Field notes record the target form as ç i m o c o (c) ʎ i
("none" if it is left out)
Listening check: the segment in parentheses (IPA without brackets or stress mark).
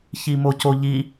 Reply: none